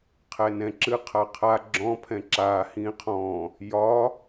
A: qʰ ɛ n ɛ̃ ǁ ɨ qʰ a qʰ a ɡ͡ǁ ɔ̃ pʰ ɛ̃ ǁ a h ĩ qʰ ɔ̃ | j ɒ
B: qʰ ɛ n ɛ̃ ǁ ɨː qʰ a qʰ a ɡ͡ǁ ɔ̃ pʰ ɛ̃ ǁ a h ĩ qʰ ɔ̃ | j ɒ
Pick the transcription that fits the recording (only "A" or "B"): A